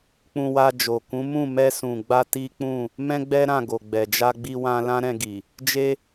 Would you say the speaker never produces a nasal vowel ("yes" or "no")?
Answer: no